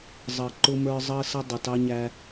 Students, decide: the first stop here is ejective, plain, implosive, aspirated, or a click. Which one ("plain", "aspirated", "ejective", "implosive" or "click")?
click